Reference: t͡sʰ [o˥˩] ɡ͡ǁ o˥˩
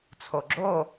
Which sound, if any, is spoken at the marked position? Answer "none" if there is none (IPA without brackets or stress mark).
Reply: o˩